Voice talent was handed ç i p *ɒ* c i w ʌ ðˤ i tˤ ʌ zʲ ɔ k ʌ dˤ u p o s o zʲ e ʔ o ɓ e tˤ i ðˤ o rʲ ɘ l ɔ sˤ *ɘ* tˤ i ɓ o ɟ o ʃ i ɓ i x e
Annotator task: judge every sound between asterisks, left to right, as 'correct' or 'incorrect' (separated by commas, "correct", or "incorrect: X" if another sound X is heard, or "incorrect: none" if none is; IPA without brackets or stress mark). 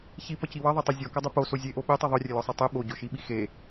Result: incorrect: ʌ, incorrect: e